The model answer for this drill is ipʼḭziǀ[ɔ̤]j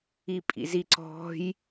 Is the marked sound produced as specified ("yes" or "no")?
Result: yes